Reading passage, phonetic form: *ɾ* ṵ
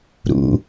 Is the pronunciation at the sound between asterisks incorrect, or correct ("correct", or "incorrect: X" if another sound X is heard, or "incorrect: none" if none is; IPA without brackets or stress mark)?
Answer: correct